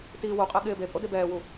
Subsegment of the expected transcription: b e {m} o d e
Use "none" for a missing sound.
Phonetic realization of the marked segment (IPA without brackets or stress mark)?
pʼ